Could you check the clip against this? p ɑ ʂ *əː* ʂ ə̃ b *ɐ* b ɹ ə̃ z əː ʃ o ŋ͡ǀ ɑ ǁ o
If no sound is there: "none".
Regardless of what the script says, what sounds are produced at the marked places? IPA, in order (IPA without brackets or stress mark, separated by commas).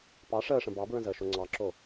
əː, ɑ